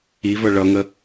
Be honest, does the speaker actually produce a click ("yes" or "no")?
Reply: no